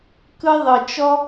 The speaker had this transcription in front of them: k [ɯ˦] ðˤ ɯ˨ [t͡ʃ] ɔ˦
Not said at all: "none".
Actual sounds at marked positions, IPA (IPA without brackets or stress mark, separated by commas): ɯ˦, t͡ʃ